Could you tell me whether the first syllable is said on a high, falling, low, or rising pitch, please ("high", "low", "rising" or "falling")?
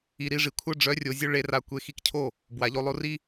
low